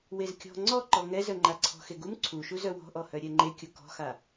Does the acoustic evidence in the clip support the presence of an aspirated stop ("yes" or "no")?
yes